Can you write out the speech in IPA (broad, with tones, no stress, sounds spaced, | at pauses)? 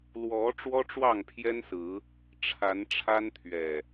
l w ɔ˨˦ ʈ͡ʂ w ɔ˦ ʈ͡ʂ w ɑ˥˨ ŋ pʰ j ɛ˦ n s ɹ̩˨˦ | ʈ͡ʂʰ a˨˦ n ʈ͡ʂʰ a˦ n t̪ʰ ɥ ɛ˨˩